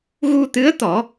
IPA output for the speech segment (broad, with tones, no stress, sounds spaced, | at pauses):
ɣ u˧ t̪ ɨ˧˥ ə̯ t̪ ɔ˨˩˦